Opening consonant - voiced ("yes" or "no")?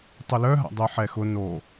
no